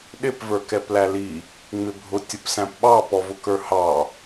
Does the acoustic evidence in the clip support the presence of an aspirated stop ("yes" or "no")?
no